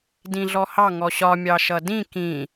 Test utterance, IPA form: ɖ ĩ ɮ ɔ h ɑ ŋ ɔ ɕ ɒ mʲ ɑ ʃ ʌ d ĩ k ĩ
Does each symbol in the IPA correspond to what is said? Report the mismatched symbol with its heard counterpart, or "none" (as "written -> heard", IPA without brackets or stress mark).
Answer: ɖ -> d